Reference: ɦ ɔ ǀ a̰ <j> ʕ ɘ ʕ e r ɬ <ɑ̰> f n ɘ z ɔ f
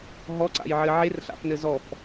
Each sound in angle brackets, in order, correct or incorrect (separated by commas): correct, incorrect